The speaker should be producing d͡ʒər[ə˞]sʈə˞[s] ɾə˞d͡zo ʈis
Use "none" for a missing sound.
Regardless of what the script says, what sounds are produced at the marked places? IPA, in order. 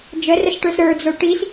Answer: ə, s

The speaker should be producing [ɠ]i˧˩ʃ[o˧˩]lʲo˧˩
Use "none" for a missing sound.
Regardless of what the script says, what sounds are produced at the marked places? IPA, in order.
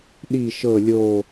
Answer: ɗ, ɤ˧˩

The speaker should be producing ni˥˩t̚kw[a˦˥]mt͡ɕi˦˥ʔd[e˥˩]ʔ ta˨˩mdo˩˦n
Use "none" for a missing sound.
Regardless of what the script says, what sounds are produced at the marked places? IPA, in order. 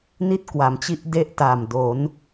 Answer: a˩˦, e˦˥

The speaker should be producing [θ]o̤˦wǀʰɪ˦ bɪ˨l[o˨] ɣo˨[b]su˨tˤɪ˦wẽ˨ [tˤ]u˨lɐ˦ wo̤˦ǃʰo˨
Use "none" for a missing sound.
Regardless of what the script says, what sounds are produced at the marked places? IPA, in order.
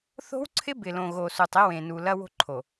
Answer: θ, õ˨, none, n

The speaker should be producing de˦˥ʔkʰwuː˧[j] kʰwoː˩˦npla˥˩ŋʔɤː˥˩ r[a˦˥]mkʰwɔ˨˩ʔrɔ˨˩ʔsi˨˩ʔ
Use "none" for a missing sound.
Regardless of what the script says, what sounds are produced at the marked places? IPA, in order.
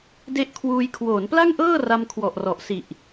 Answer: j, a˧

